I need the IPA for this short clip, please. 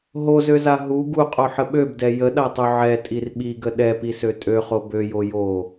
ɦozøza ɦu ɡuqʼoħə ɓøbdɛ jəɗatˤu ʕɛtʼir ɓiɡə ɗɛpisø tʼøχo bøjo jo

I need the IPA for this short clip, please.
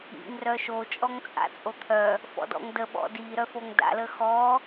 ḭŋ rœʃo t͡ʃʼɔŋt͡sʼa̰t͡sʼot̪ʰœ | fɔ̰dɔ̰ŋdə ɓɔ̰di ɾœfoŋda̰ ləxɔ

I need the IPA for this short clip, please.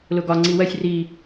lʊɡɒ ŋ͡ǀiwɜsʲ ri

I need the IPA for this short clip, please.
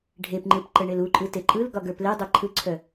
ɖʱepŋ͡ǃɯp ǃəɳeluǃʼɯ teǃʼɯlɡɒ ɡə˞pledˤə ǃʰɯǀʰœ

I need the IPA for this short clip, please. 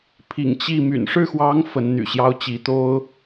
pʰḭ˨˩ŋ t͡ɕi˥˩ my̰˨˩nʂɻ̩˥˩xwɑ˧˥ŋ fə˧˥nn̪y̰˨˩ɕjɑ˥ʊ̯t͡ɕi˧˥ t̪o˥ʊ̯

